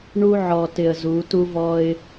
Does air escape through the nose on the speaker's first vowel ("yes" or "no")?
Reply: no